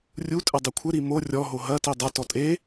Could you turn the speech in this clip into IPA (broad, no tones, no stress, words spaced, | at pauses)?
rʲutʼɘ dˤekʷʰɘɾi mo rʲɔɦo ɦɐti dˤɐtɔ tʼe